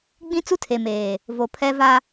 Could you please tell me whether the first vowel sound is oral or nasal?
nasal